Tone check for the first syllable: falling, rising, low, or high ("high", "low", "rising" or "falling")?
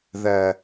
low